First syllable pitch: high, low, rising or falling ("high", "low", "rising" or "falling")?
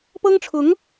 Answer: high